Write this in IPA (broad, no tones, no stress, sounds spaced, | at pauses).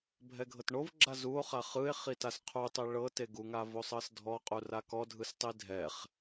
bʱ ɛ ɡʱ ɤ t ɳ o v ɡ͡ǁ a z u o̯ χ a χ ɯ e̯ χ i t a s qʰ u tˤ e ɭ ɤ t e ɡ u ŋ a v o sˤ ɤ s dʱ ɔ qʼ u r a k ɔ dʱ ɯ s tˤ i dʱ ɛ χ